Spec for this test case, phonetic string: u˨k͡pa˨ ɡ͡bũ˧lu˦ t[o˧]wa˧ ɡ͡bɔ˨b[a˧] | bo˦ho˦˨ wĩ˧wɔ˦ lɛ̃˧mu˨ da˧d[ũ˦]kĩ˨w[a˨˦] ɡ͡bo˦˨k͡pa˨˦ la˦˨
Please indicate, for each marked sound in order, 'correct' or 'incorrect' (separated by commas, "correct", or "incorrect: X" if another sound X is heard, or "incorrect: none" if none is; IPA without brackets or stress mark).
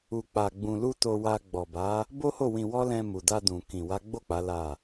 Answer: correct, incorrect: a˨˦, incorrect: ũ˨, correct